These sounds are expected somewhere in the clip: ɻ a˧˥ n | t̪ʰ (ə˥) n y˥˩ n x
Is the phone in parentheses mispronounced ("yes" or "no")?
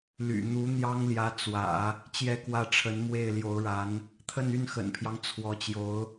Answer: yes